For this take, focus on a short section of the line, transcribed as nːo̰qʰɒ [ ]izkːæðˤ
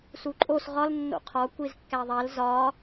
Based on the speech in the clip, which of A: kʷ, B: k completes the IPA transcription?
A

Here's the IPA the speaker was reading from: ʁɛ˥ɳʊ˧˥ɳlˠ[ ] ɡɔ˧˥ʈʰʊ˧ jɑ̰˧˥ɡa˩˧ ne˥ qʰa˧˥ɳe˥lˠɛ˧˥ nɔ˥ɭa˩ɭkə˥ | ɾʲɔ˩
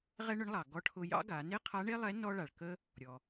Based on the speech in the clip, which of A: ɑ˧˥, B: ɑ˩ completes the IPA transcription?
B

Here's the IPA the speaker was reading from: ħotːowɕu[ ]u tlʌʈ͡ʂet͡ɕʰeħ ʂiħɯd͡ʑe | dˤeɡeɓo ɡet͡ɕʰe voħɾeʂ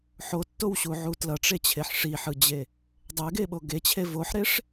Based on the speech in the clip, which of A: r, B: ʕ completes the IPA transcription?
B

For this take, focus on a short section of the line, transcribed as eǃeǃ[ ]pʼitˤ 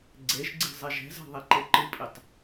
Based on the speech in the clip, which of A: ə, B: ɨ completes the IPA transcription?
B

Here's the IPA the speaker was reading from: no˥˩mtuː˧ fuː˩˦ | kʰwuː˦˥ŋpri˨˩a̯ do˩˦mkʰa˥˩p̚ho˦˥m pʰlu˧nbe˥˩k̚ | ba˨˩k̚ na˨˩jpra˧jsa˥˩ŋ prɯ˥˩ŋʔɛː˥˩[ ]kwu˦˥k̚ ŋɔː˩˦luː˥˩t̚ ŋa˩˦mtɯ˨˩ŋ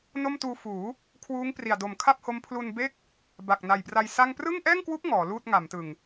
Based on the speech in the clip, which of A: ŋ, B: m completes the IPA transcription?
A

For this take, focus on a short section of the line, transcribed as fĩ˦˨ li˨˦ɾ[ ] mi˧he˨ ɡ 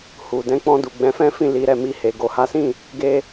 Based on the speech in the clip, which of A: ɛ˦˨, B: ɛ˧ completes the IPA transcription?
A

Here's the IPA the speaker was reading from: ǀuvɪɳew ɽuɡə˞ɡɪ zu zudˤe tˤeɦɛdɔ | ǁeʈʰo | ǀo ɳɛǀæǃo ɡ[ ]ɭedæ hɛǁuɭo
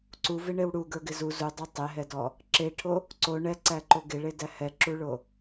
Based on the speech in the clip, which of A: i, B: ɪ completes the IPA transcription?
B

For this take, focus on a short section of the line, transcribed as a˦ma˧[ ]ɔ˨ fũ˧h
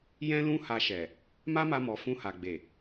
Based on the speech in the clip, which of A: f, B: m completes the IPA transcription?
B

